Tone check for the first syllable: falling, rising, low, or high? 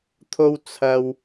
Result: low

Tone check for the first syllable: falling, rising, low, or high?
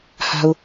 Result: low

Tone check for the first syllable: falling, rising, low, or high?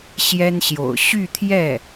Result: high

